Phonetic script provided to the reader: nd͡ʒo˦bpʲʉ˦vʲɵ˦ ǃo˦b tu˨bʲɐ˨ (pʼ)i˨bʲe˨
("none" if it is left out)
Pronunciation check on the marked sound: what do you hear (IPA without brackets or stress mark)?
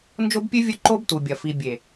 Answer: f